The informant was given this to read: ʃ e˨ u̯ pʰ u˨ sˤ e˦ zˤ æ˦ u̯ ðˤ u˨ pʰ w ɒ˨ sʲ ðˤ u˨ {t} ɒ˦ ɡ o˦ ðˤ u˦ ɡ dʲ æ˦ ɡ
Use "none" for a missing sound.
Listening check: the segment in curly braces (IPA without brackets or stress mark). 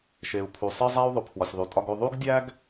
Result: tʼ